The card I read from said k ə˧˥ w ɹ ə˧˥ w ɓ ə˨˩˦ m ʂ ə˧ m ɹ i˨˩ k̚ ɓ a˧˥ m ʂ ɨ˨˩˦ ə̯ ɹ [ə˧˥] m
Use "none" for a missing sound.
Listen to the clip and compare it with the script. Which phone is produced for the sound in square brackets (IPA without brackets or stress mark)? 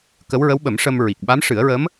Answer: ə˧˥